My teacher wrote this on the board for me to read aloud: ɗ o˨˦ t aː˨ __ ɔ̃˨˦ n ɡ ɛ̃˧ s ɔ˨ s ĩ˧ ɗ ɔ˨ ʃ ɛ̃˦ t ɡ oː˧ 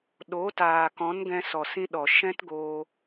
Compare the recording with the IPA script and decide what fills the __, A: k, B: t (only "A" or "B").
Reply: A